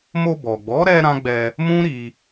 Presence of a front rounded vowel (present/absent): absent